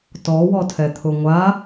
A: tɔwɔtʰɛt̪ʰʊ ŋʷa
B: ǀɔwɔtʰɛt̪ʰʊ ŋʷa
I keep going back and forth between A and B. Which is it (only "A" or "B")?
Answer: A